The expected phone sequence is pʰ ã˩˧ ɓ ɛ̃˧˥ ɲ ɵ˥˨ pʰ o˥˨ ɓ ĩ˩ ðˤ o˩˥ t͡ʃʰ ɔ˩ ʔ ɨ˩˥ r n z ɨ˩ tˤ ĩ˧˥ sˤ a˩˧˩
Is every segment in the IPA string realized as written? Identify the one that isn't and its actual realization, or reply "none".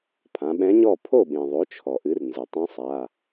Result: ɵ˥˨ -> ɔ˥˨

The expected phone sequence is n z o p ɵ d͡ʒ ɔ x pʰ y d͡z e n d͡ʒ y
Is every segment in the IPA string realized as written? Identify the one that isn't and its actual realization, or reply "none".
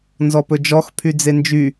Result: o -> ɔ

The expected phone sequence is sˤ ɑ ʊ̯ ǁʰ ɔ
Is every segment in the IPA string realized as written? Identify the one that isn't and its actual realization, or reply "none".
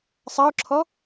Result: none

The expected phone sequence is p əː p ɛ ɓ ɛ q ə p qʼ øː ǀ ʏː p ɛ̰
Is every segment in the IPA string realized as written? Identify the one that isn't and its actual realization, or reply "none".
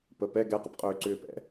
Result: ɓ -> ɡ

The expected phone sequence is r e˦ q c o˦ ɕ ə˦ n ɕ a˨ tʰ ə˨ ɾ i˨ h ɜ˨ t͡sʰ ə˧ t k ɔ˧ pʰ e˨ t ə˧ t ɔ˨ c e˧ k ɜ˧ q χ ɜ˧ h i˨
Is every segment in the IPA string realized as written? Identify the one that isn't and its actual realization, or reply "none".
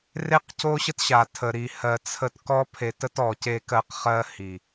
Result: n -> t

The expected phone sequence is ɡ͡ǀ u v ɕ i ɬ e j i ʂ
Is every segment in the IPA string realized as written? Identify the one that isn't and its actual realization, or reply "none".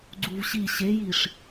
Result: ɬ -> ɕ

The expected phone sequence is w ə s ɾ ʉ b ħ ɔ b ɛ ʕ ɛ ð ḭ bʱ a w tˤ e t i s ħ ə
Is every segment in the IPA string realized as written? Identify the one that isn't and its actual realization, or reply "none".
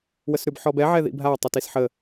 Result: none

